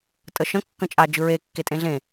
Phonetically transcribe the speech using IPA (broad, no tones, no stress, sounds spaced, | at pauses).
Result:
tʼ ə ʃ ə̃ kː ə̃ t͡ʃʼ a d͡ʒ ɯ ɹ e kː e tʼ ẽ ɮ ẽ